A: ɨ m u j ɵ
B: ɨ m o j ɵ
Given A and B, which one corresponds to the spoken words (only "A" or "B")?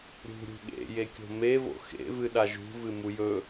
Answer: A